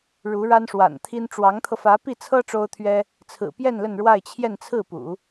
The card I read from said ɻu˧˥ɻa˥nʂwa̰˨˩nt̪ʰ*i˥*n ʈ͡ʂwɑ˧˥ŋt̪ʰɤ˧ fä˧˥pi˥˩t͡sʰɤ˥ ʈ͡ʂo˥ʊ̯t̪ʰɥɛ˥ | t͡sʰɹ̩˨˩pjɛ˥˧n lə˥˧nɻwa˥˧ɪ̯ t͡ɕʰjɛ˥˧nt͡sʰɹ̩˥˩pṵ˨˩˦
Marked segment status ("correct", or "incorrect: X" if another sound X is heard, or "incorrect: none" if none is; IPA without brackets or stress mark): correct